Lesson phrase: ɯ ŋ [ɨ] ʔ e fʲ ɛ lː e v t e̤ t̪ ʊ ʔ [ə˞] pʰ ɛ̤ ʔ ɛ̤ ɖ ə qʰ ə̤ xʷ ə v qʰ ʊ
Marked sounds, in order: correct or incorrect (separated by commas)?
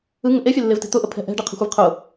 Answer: incorrect, incorrect